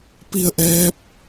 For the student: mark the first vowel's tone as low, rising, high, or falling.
falling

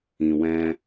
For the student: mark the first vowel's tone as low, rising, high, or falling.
low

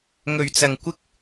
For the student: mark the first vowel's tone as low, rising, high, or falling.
low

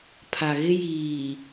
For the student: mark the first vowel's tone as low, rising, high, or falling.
low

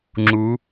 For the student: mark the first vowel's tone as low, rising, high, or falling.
rising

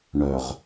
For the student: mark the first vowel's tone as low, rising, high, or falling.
low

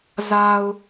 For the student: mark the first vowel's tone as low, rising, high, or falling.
low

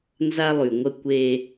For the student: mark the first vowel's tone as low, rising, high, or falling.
high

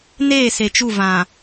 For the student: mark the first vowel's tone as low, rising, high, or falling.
falling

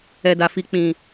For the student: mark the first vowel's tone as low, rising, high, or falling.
low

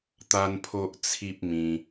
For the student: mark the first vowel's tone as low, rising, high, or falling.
high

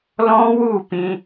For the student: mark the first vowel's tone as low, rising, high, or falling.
high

